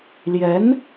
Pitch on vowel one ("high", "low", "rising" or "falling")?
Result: rising